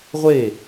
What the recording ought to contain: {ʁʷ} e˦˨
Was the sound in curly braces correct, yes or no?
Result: yes